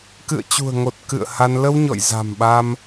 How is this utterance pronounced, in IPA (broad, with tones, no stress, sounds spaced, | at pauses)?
k ɨ̰˧˨ ə̯ t͡ɕ ṳ˨˩ ə̯ ŋ o˨˩ t̚ k ɨ̰˧˨ ə̯ h a˧ n l ə˧ w ɲ ɔ̰˧˨ j z a̤˨˩ m ɓ a˧ m